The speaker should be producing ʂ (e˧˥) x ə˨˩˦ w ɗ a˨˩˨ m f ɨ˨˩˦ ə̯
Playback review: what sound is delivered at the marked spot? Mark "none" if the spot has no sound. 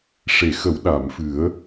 e˨˩˨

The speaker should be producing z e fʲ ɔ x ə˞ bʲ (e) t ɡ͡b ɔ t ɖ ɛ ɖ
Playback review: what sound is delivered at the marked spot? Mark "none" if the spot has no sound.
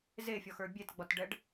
e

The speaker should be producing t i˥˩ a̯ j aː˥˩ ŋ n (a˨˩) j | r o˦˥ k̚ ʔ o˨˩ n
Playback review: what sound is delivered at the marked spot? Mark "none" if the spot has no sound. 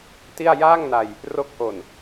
a˧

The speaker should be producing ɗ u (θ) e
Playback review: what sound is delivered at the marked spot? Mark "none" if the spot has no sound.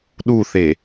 θ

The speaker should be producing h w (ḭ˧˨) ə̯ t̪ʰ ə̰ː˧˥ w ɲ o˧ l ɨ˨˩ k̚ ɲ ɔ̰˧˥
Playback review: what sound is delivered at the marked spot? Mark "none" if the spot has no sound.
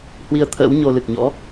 i˧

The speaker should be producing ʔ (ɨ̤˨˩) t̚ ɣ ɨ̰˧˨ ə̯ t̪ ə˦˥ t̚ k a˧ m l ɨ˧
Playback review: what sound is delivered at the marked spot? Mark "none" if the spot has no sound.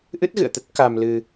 ɨ˦˥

